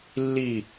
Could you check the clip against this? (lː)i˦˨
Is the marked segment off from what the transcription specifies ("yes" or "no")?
no